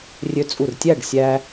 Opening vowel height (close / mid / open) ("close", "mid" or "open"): mid